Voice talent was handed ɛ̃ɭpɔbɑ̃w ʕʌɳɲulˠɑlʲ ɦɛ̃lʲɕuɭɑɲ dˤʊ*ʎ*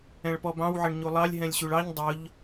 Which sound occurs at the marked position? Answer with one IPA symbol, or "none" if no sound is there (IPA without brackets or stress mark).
ʎ